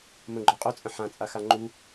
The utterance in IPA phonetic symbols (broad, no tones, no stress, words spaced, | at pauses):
mə̃ɡ͡ǃɔ qʼɵt͡sʼə̃ ħãt͡sʼaxa ŋ͡ǃu